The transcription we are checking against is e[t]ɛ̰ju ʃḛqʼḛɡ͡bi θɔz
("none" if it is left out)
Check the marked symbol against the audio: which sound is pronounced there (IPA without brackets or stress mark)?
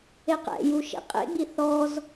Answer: q